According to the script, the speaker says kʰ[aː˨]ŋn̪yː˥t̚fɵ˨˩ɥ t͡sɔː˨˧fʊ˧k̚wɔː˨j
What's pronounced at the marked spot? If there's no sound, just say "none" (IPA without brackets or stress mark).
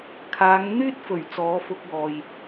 aː˨˧